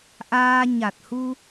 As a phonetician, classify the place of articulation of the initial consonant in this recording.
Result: glottal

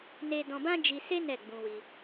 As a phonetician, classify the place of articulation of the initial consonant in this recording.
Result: alveolar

